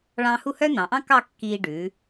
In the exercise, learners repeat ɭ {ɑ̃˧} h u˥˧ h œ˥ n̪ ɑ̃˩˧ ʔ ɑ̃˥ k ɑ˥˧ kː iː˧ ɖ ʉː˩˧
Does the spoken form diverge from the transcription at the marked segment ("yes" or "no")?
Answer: no